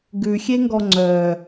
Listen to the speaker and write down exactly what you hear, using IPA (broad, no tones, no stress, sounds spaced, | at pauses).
ɡ ʉ xʲ e ŋ ɡ ɔ ŋ͡ǀ œ